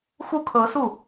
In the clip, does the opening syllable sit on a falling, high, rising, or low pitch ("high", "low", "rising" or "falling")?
falling